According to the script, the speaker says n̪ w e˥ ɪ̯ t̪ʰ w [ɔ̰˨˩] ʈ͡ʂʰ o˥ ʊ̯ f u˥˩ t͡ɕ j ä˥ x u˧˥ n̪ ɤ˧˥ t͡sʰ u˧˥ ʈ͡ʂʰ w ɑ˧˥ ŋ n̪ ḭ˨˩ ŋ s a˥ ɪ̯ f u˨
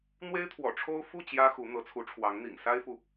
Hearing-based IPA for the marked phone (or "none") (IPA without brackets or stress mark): ɔ̰˨˩